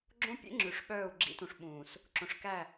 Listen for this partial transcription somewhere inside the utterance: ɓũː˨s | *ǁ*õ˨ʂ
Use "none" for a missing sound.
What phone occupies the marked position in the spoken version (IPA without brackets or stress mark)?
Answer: ǁ